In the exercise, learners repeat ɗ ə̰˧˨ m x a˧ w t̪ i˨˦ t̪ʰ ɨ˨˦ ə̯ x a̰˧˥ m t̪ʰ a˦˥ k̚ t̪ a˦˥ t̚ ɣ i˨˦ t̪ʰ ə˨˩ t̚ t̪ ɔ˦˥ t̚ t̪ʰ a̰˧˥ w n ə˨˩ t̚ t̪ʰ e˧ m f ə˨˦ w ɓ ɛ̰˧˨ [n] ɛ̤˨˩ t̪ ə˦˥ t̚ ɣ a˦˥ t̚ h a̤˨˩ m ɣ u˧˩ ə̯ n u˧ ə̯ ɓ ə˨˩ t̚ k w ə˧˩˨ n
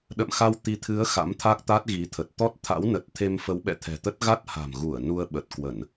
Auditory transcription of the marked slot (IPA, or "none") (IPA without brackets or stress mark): t̪ʰ